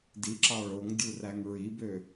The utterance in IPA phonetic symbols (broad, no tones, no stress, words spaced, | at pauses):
diǁɑ ɭoŋdʲuræŋ ɹibø